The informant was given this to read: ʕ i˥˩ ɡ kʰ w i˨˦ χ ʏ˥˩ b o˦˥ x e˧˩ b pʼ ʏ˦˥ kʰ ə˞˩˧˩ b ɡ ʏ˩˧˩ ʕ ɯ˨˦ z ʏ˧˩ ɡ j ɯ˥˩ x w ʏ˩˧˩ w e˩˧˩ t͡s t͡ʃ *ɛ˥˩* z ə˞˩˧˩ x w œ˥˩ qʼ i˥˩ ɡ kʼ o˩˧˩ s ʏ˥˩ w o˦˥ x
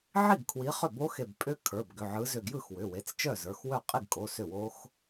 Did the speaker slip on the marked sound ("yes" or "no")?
yes